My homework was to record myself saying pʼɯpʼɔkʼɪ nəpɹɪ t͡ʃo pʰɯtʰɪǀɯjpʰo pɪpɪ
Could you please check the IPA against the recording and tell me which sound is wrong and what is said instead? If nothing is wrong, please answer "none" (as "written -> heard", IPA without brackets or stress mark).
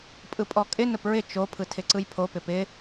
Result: none